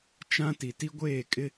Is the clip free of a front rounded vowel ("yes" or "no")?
yes